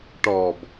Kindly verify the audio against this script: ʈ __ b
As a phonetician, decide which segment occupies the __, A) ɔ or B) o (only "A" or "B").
A